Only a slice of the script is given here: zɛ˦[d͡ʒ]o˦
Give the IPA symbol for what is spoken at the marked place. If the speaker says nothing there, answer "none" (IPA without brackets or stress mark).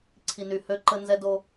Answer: d